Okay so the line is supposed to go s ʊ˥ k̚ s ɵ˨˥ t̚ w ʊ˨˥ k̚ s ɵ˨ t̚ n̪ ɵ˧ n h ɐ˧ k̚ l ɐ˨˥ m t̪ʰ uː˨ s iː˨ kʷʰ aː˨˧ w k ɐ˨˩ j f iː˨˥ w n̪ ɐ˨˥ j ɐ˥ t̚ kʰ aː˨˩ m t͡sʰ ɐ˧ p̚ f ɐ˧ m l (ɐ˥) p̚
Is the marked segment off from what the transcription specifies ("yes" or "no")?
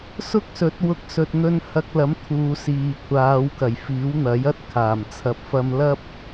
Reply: no